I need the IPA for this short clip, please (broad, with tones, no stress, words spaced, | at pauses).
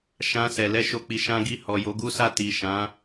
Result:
ʃã˧sɛ˨ lɛ˧ ʃo˦k͡pi˧ ʃã˦ɡi˦˨ hɔ˨jo˨˦ɡu˦sa˦˨ ti˨ ʃã˨˦